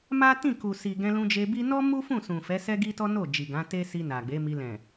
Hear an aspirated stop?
no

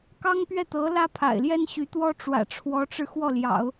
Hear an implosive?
no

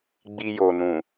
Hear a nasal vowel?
yes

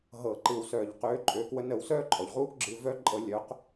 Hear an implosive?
no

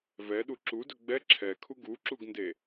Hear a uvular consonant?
no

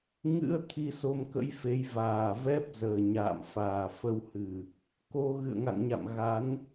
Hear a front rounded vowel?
no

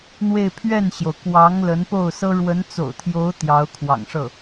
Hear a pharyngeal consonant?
no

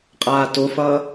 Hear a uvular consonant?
yes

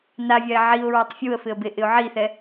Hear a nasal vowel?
no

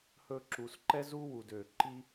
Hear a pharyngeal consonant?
no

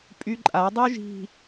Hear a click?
yes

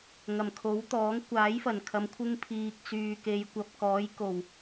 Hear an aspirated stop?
yes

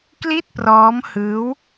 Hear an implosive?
no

